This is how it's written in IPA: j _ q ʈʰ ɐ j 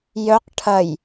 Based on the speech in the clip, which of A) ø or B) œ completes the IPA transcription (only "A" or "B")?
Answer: B